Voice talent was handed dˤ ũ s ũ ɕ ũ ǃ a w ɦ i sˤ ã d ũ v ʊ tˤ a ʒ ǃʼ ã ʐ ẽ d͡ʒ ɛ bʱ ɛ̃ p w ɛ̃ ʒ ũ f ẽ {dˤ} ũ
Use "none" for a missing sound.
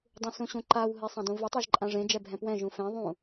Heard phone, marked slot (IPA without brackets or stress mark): ðˤ